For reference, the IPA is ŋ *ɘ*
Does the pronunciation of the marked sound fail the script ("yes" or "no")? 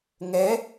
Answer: yes